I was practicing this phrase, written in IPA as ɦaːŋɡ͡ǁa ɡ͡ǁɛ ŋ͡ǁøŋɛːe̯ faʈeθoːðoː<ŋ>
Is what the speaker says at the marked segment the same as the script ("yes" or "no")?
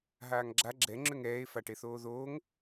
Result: yes